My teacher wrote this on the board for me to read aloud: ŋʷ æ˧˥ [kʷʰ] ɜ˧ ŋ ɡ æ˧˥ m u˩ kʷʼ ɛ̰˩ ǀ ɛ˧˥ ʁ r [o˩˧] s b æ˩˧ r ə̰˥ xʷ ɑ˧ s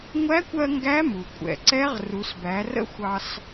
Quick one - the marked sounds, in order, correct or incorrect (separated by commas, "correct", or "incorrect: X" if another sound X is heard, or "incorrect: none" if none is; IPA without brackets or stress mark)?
incorrect: kʷ, incorrect: u˩˧